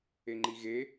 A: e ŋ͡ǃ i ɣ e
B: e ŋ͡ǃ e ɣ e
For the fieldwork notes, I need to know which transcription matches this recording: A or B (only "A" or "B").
A